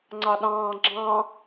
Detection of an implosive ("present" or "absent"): present